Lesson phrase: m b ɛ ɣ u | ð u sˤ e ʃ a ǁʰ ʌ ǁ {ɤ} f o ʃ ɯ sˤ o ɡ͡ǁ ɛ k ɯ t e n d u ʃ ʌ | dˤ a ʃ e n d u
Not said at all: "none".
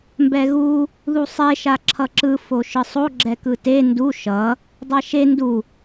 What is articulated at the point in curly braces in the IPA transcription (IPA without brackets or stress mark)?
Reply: ɯ